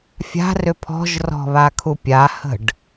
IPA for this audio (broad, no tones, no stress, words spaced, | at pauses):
fʲa̤rʏ pʰɔ̤ʒrɔ̤βakʰu pʲahə̤ɖ